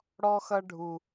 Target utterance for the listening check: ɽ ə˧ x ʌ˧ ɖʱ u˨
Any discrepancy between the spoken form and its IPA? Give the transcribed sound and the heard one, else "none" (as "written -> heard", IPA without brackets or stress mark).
ə˧ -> ɔ˧